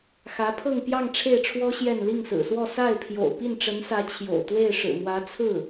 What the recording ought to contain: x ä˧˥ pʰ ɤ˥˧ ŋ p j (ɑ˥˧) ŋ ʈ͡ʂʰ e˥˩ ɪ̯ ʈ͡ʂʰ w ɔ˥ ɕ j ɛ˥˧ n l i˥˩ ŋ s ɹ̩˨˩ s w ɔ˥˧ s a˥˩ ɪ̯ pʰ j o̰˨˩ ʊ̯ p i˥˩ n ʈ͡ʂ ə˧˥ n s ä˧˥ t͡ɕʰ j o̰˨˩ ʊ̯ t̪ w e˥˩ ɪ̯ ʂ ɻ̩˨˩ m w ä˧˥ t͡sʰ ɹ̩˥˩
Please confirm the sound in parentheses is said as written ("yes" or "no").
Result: yes